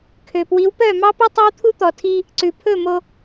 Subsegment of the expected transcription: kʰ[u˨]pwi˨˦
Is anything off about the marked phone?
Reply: yes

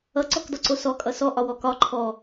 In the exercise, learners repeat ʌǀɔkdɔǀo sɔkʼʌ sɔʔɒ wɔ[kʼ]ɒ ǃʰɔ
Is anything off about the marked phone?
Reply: yes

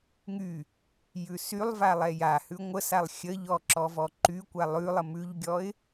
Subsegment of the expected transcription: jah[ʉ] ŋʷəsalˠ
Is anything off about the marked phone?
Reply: no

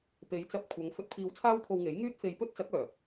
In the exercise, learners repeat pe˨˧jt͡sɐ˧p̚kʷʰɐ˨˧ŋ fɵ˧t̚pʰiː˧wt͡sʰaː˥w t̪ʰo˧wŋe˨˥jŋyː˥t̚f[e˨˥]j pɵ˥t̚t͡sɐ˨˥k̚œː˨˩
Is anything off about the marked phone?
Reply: yes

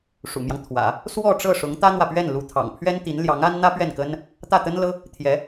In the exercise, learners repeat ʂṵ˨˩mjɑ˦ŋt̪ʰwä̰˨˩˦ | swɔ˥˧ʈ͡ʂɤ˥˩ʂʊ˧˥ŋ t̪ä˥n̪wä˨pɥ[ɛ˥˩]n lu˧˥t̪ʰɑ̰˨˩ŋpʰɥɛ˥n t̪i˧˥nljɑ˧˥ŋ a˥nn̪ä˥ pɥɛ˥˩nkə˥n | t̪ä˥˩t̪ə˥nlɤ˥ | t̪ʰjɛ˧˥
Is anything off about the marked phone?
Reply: no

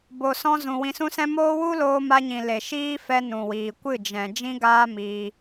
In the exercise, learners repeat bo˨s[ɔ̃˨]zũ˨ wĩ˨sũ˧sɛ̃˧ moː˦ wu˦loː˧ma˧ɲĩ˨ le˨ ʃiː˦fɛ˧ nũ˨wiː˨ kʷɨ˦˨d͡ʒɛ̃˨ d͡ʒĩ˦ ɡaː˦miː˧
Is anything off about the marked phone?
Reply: yes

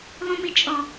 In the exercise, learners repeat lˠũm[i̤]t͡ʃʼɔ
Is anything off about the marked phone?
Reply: yes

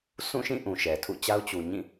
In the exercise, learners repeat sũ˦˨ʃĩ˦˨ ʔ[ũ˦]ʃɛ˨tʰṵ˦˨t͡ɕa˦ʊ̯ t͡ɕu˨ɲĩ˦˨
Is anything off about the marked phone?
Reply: yes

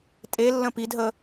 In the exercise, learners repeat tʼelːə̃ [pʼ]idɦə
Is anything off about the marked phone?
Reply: yes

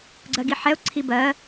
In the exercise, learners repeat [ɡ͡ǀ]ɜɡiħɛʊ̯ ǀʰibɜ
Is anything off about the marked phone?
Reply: no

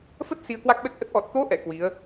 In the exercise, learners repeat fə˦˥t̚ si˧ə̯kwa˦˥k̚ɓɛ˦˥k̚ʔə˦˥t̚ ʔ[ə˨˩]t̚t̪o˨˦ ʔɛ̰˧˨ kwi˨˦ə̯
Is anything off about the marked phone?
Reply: yes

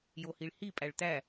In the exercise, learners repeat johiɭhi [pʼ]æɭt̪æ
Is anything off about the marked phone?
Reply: no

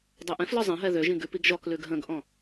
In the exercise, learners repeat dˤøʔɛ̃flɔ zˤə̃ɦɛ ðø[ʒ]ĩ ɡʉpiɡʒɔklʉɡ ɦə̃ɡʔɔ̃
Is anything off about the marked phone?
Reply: no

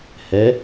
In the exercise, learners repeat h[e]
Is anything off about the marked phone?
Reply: yes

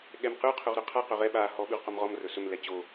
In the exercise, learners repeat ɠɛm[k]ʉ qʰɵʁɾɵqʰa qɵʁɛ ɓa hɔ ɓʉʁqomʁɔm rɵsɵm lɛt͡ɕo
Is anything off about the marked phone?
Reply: yes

